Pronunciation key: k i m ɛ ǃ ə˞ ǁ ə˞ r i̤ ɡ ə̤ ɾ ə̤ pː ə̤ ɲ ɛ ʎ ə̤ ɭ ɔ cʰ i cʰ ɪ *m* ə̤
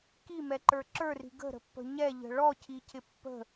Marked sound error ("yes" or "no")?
yes